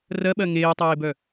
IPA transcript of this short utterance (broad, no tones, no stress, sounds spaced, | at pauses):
r ɜ ɓ ɜ ŋ eː tˤ eː b œ